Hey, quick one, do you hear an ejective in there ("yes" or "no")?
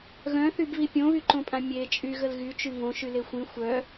yes